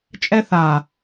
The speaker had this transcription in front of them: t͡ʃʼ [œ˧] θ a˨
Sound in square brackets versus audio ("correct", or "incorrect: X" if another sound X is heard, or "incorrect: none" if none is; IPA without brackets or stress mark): incorrect: ɛ˧